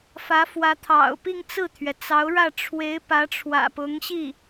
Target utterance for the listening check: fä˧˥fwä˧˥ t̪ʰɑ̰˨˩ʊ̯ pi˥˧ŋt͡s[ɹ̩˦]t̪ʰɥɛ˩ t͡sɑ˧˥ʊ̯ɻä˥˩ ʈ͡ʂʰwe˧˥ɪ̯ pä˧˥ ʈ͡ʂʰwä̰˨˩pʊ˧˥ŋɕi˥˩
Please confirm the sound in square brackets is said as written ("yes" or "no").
no